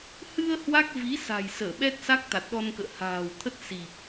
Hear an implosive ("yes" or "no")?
yes